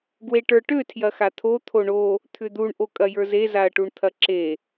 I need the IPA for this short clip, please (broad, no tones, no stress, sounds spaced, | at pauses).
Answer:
ɡ w e ʈ ə˞ ʈ ø tʰ j ɐ x a t̪ʰ o t̪ʰ o ɳ o | t̪ʰ ʏ d̪ u ɳ ʔ o kʼ ɐ j ə˞ z e z a ɐ̯ ʈ u ɳ t̪ʰ ɐ ǁ e